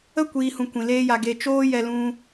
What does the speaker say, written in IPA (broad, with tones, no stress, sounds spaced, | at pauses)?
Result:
ə˦ kʷ iː˨ h ũ˨ kʷ ĩ˨ l eː˦ j a˧ ɡ e˧ t͡ʃ oː˦ j ɛ˧ l ũ˧